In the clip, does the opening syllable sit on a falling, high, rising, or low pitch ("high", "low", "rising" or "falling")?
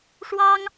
high